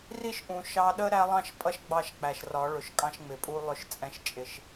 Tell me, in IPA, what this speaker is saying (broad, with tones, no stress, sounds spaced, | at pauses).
r i˦ ʃ ʔ ũ˨ ʃ ɑ˦ ɗ ə˦ ɾ æ˦ lˠ ɑ̃˦ ʃ pʼ ʌ˦ ʃ ɡ͡b ɑ˦˨ ʃ k͡p æ˨ ʃ r ɒ˨˦ ɭ ʊ˨ ʃ kʼ ɑ̃˦ ʃ ŋ͡m ɪ˨ pʼ u˦ lˠ ʊ˦ ʃ t͡sʼ ɛ̃˦ ʃ t͡ʃʼ ɪ˦ ʃ